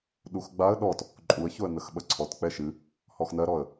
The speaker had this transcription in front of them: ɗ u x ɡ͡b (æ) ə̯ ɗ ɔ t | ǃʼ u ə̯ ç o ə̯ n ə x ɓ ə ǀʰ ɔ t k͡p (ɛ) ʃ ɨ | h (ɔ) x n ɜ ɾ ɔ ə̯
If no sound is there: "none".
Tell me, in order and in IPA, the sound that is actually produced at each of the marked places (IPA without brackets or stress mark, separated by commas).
a, ɛ, ɔ